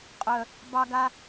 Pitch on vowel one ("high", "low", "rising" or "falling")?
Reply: low